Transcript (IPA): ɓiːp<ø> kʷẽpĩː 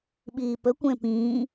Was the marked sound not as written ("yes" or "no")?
yes